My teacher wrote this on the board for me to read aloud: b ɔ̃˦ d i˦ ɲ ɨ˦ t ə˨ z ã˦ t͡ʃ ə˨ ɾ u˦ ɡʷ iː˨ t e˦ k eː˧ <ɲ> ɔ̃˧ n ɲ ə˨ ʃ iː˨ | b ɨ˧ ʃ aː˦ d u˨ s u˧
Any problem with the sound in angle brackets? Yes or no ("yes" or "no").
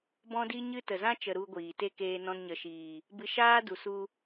yes